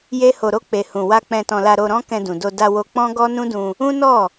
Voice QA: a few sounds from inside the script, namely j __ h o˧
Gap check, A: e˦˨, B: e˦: B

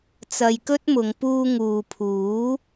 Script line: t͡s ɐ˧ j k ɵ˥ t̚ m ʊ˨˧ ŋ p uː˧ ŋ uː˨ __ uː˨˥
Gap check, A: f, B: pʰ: B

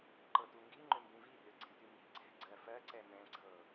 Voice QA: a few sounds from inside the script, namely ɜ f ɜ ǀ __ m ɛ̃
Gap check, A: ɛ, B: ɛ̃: A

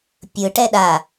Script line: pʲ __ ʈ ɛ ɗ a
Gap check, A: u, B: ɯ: B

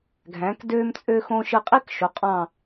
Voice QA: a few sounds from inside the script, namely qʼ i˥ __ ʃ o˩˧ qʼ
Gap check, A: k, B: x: A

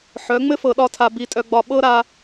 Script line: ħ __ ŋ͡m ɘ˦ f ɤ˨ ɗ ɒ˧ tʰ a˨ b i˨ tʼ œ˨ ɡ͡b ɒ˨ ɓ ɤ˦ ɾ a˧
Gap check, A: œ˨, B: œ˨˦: B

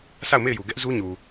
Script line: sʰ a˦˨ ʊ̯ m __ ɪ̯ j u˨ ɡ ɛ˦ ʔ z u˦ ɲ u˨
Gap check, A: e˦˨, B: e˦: A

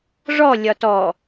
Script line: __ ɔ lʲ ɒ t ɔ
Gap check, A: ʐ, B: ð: A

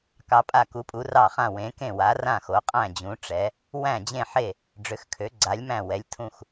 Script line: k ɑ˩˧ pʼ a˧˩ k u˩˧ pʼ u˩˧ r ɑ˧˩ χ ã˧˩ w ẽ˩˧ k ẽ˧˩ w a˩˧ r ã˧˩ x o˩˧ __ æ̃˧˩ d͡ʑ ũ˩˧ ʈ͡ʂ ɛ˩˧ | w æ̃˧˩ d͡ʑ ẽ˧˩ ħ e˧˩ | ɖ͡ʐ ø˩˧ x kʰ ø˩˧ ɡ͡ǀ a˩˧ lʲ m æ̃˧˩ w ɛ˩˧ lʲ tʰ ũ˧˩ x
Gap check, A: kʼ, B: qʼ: B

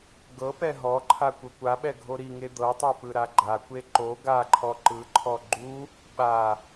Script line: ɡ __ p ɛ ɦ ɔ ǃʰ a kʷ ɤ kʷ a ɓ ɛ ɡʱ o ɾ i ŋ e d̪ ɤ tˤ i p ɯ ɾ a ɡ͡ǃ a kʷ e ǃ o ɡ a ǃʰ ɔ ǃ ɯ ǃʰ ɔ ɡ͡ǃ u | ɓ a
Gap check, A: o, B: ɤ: B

